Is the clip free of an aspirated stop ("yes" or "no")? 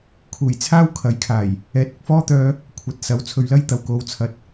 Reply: no